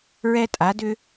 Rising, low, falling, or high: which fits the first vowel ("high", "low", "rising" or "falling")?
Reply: high